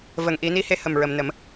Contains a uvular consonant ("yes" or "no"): no